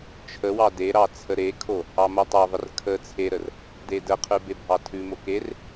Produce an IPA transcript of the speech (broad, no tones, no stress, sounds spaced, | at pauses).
t͡ʃʰ ə w ɑ d e ɾ ɑ t͡sʰ ə ɾ e kʰ o | ɑ m o tˤ ɑ ðˤ ə r kʰ ə t͡sʰ e ɾ ə r | d e d ə qʰ ʉ b e bʱ ɑ tʰ ʉ m o k e r